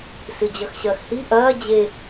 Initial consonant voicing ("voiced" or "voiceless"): voiceless